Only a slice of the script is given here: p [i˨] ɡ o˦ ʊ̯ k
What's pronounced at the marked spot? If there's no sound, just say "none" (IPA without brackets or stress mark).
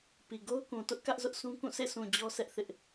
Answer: i˨